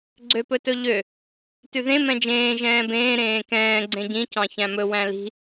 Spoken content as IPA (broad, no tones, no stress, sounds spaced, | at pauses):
ɡ͡ǀ ø p ɵ t ɵ ʎ ø | t ʉ ð ẽ m ɛ̃ d͡ʒ ẽː ʒ ɛ̃ː b ẽː ɾ ẽː k ɛ̃ː ɡ͡ǀ ẽ ɟ ĩ c ɑ̃ ç æ̃ m ɵ w æ̃ l i̤